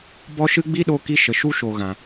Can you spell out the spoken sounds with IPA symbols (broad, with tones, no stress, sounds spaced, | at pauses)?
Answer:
b ɔ˦ ʃ ɨ˦ ɡ͡b i˦ ɗ o˧ k i˧ ʃ ə˨ ʃ u˦ ʃ o˨ ɣ ã˨